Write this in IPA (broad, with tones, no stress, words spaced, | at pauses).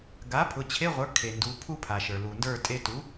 ɡa˩˥ pʰʊ˩˧˩t͡ɕʰe˧˥˧ʁʷə˞˩˥kʰe˩ ndu˩˧˩pʰu˥pʰa˩ʃə˞˩ lu˩ndə˞˥˨tʼe˧˥˧ tu˩˥